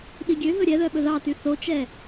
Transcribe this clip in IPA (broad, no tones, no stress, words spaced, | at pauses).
ɗiɡʲøɦɵ ɾʲɛ ðœɓɵðɑty θot͡ʃɛ